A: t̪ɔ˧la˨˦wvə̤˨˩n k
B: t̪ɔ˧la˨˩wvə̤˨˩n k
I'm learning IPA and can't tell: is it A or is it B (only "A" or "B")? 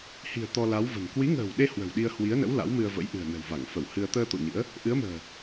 A